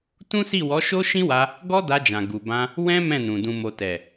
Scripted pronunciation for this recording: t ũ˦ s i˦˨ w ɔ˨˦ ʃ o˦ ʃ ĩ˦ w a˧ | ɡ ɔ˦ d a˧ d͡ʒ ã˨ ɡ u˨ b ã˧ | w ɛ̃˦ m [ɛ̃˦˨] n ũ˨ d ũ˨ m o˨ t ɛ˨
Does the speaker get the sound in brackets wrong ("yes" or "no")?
no